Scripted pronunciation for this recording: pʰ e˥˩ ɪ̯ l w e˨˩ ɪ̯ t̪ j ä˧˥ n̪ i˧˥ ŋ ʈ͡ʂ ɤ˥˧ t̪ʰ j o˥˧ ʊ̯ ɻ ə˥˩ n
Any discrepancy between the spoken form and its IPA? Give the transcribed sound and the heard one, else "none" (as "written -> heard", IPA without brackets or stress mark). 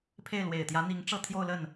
ɻ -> l